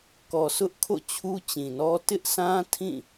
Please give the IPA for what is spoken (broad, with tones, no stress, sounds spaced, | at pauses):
k ɔ˨ s ʊ˦ ʔ kʰ o̰˦˨ t͡ɕʰ u˦ t͡ɕ ĩ˨ n ɔ˦ t ɪ˦ ʔ sʰ ã˦ tʰ ĩ˦˨